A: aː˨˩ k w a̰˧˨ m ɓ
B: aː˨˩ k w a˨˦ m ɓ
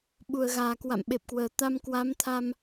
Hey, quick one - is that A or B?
A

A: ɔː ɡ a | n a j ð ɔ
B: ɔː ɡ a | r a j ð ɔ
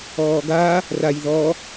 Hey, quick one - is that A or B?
B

